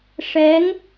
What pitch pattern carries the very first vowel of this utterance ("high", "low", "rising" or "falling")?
rising